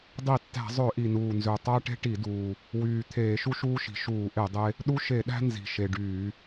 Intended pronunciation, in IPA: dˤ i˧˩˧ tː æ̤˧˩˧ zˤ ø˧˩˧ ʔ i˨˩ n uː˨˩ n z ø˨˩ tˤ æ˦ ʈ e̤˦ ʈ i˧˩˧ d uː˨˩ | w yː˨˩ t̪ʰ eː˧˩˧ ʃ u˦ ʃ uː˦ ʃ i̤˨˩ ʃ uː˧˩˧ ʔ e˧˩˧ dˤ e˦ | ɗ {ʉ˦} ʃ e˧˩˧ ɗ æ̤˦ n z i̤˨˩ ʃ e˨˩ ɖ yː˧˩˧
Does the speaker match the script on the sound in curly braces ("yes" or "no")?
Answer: no